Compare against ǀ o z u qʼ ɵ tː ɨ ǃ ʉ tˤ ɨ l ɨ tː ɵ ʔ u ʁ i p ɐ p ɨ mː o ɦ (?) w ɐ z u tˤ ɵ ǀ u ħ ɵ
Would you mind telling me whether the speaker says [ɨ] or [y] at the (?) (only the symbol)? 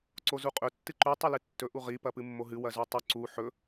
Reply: ɨ